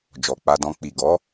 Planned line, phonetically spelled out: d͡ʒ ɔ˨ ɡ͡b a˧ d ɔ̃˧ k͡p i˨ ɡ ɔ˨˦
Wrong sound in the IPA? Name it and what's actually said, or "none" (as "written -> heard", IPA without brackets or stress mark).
ɡ͡b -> k͡p